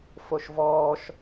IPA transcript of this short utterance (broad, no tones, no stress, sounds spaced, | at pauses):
f o ʃ v ɔː ʃ